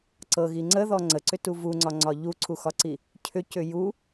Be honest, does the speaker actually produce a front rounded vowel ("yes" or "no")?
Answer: yes